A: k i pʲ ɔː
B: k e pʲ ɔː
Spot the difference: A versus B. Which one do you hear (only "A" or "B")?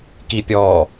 A